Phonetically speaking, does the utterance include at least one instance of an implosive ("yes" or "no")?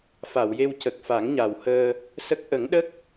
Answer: yes